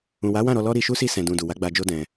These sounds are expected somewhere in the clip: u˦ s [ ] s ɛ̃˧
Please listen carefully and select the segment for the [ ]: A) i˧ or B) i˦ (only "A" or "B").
B